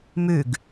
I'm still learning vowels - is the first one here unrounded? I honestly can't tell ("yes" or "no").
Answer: no